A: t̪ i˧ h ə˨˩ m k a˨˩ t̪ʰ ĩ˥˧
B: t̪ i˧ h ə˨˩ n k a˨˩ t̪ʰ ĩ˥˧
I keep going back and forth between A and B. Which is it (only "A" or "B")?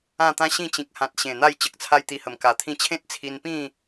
A